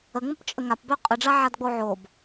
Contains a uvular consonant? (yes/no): yes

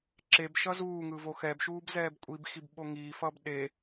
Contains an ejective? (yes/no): yes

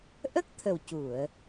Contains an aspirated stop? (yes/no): yes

